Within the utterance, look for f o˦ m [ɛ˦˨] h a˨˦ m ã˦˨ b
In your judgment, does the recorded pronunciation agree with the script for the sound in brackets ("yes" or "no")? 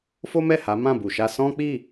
yes